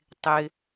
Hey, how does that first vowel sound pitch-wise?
low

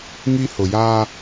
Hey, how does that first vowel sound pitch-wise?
high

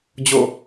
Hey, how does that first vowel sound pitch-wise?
falling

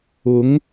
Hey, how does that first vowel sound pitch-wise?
rising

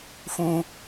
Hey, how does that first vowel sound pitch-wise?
high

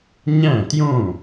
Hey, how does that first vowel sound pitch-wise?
falling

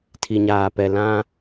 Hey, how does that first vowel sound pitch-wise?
low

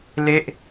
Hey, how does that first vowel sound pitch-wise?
falling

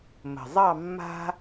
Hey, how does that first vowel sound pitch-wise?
low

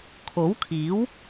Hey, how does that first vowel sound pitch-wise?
rising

